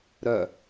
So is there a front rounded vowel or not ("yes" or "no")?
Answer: yes